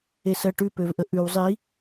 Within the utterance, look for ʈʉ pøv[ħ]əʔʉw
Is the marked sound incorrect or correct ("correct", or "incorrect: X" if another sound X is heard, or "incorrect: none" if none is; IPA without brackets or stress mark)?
incorrect: ʔ